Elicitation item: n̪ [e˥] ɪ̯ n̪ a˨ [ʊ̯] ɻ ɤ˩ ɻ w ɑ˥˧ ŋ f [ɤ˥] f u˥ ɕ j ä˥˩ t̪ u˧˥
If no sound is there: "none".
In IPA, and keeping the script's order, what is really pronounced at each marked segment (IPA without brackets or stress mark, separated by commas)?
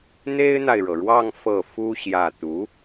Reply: e˥, ɪ̯, ɤ˥˩